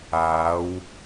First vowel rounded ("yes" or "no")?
no